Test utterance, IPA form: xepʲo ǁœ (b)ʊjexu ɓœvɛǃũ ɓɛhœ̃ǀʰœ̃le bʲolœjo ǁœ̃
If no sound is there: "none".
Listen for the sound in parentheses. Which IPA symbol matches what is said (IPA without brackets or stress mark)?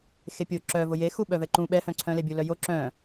v